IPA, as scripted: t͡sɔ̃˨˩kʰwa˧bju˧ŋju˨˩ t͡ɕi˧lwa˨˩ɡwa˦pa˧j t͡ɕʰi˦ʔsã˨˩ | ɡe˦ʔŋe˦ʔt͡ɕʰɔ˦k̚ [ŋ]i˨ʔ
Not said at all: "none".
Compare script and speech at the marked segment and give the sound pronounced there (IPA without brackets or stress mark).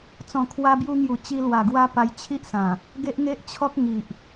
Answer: ŋ